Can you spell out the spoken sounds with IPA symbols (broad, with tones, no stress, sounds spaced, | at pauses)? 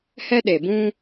h ɛ˦ ɗ e˨ b ũ˦